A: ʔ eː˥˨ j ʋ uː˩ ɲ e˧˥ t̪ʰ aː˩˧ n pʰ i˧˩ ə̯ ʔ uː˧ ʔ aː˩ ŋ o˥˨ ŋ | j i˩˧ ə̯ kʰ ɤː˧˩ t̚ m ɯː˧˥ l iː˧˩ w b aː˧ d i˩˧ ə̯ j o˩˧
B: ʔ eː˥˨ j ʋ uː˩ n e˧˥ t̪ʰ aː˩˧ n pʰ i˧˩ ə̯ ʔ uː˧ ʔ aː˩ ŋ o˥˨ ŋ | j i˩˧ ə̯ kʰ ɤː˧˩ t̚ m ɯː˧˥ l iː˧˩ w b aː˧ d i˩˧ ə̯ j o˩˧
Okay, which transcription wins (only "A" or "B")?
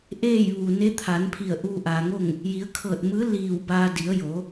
B